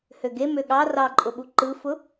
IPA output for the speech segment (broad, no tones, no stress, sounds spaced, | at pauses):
h ø ɡ e m ø ɠ ɑ r ɑ ǃʼ ʊ ɓ u ǃ ɯ f ʊ